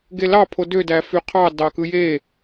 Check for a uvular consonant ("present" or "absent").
present